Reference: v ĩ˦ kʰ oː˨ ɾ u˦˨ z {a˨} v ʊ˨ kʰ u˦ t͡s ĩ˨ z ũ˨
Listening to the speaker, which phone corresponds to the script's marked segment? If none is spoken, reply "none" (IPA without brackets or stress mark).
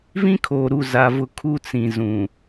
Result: a˨